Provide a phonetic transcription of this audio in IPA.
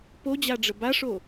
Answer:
p o d͡ʑ a ɖ͡ʐ ə b a ʂ o

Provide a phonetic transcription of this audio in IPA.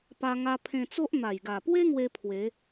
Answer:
p a˧ ŋ a˧ pʰ ẽ˧ t͡s o˦ ʔ n̪ a˨˩ j ɡ a˨˩ p w e˦ ŋ w e˦ pʰ w e˨˦

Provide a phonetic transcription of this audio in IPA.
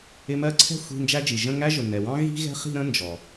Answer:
ɪ˧˥˧ m ɜ˥˧ ǀʰ ɛ̤˥ xʷ i̤˧˥˧ n d͡ʒ æ˥ d͡ʒ i˨ ʒ ə̃˥˧ ŋ æ˥ ʒ ʊ˨ n ɛ˨ w ɑ̃˥ ɣ i̤˥ ɣ ɛ̤˥ χ i̤˥˧ ɾ ə̃˥ n d͡ʒ ɔ˨

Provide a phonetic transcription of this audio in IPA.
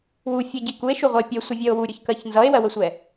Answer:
w u fʲ ɛ ɟ i k u e̯ ʃ u ʁʷ ʌ e̯ pʲ ɛ sʷ ʌ vʲ ɜ o̯ w u ɾʲ ʊ ç k ɜ ç n z ʌ e̯ w ɜ w ə sʷ ɛ

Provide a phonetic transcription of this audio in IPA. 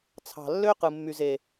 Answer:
t͡sʰ ɑ̤˨ lː ø˦ q ɯ˨ mː y˨ z e˨

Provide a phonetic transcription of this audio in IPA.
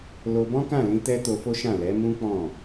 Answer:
l o˧ b ɔ̃˦ k ã˦˨ l ĩ˧ t ɛ˧ t o˧ f o˦ ʃ ã˦˨ l ɛ˨˦ m ũ˦ k͡p ɔ̃˦˨

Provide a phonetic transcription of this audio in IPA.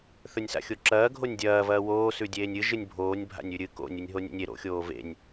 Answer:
θ ɵ nʲ s a̰ xʲ o ǁ ɐː ɡʱ o nʲ dʲ ɐː v ɐː w oː s ʉ dʲ eː nʲ ɨ ʒ ɨ nʲ bʱ oː nʲ bʱ a̰ nʲ ʉ ɾʲ ɨ k o̰ nʲ ɨ nʲ ɦ o nʲ ḛ nʲ e ɾ o̰ xʲ oː v ḛ nʲ

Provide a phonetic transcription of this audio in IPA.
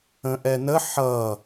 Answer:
ə̃ ʔ ɛ n ə ħ ʌ

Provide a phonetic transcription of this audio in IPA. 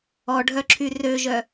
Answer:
ɔ ɖʱ œ ǁʰ y r ø ʒ œ

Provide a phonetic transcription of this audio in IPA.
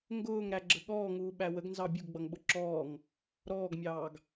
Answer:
ŋ ɡ ʊː ŋ ɾ æ ɡ͡ǁ ə ɠ ɔː ŋ uː ɓ æ w ə ɡ n z ɑ bʲ u ɡ ɡ͡b ʌ ŋ ɓ ʊ ǁ ɔː ŋ | ɾ ɔː ɡ mʲ ɑː ɡ

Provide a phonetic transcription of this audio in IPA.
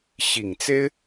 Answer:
ɕ i˨˩ ŋ t͡s e˥ ɪ̯

